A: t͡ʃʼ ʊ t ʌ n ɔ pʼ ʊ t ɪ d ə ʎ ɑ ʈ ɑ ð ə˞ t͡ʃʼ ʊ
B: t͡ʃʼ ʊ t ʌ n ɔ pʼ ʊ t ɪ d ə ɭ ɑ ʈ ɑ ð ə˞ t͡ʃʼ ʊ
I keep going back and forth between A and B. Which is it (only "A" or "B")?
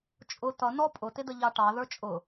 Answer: A